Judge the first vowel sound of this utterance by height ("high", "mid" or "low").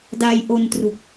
low